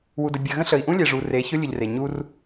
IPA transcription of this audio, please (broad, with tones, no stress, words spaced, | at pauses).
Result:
wu˨də˨bʲɜ˨ɣə̃˦ ɬə˨i̯ʔũ˦ lʲe˨ʐu˨ re˨˦çʊ˦lʲʊ˨ʎre˨ ɲu˦r